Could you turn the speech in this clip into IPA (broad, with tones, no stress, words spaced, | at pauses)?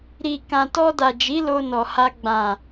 ɾi˨ kã˨tɔ˧da˨d͡ʒi˨˦ lo˧nɔ˨ha˧ ɡ͡bã˨